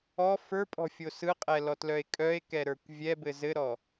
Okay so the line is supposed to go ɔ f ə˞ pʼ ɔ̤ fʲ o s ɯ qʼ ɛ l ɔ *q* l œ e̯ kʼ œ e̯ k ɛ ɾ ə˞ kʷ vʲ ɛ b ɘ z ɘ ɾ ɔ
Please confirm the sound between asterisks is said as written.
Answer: no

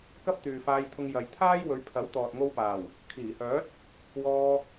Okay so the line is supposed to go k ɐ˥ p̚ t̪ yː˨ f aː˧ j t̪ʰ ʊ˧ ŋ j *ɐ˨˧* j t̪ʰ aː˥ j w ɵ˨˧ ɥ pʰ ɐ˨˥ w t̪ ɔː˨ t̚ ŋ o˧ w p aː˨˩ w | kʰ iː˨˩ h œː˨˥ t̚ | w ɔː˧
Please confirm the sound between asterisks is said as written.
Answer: no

